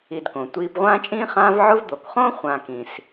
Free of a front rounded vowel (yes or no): yes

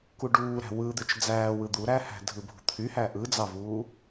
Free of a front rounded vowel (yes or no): no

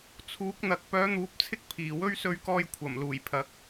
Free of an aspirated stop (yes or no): no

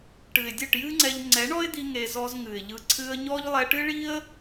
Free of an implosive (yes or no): yes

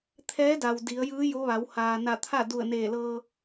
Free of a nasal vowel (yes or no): yes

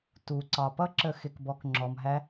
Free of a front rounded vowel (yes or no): yes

